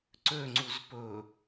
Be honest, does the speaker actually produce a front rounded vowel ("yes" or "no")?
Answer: yes